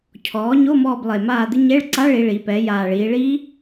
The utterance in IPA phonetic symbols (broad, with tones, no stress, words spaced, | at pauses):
cʰɔː˩˥ɲo˧˥˧ mɔː˦˨blˠe˨˩maː˦˨d̪ɪ˦˥ ɲe˧˥˧ɭǀa˧˥˧ɭi˩˧ ɭi˩˧pɛ˩˧ jaː˨˩ɭiː˩˧ɭiː˦˥